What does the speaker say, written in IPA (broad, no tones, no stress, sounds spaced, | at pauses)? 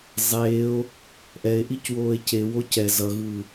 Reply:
zˤ eː o̯ | ʔ ɛ e̯ ʔ i c w oː e̯ c e w o c ɛ z ʌ ɣ ɯː